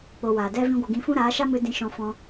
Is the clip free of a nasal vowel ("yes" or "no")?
no